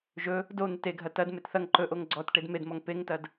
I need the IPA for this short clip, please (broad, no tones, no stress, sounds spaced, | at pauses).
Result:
ʒ ɵ | d o n̪ e t e ɡʱ ɐ t ɐ d m e t θ ɐ ŋ ǃ ɵ ʔ o ŋ ɡ͡ǀ ɔ t ʈ e d m e d m ɔ ŋ p e ŋ t ɐ d